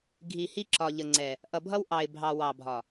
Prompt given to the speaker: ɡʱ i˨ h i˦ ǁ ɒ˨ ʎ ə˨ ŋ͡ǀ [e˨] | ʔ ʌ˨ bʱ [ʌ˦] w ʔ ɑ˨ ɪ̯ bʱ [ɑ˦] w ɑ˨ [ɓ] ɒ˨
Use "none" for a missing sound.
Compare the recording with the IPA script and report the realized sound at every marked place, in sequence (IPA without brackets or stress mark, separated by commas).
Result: ɛ˨, ʌ˦, ɑ˨, bʱ